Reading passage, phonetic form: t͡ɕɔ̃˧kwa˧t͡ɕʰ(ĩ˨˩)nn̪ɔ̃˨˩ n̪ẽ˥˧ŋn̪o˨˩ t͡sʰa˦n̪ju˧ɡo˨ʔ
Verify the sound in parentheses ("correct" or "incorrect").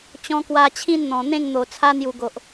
incorrect